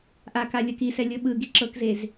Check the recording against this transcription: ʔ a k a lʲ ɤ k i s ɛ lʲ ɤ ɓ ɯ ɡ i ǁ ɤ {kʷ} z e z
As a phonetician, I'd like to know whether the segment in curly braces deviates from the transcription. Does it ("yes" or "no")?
yes